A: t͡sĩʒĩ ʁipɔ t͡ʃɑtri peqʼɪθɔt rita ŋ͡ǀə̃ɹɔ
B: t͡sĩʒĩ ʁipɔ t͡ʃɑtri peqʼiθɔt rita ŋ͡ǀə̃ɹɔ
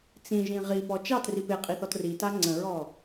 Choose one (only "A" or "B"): B